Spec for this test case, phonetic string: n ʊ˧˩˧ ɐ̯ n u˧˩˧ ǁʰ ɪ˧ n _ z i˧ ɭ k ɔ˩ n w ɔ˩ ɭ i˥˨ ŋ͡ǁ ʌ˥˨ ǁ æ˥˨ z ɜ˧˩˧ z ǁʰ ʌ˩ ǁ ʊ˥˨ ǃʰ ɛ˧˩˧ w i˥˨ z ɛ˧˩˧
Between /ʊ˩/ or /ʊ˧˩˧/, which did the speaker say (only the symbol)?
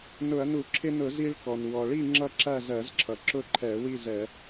ʊ˧˩˧